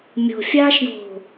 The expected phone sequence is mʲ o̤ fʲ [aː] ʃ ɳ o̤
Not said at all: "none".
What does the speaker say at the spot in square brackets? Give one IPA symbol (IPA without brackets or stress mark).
aː